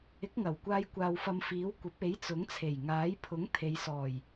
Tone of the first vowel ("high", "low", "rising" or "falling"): rising